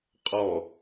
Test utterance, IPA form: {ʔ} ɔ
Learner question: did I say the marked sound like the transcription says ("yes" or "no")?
no